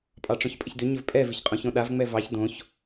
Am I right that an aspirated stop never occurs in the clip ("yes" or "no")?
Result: yes